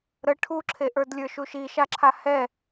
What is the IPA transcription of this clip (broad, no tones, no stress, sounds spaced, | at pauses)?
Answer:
ɾ ə ʈʰ u ǁʰ e ʔ ə˞ d lʲ ə˞ ʃ u ʃ i ʃ a ǁʰ a h ɛ